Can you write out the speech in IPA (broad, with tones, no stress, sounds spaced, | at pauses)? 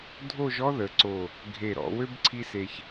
dʱ o˥˧ ʒ ɔ˥ ð ə˩˧ ǀ o˧˩ | ɡʱ e˧˩ ɾ ɔ̰˩˧ w ø˥ b ǀʰ i˥ s e˧ ç